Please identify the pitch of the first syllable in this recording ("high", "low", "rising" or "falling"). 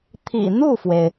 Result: low